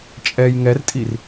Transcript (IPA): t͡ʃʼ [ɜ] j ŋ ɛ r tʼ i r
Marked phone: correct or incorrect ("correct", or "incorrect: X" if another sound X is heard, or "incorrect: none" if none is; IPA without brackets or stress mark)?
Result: incorrect: ɛ